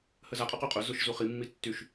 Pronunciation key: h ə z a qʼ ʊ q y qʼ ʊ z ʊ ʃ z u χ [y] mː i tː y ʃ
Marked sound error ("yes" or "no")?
yes